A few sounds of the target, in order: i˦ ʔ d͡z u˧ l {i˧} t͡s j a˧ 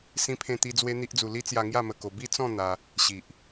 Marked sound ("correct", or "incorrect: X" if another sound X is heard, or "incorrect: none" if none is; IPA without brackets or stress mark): incorrect: i˦